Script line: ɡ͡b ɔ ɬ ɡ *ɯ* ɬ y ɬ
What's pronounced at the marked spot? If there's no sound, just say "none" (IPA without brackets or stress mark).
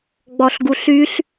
u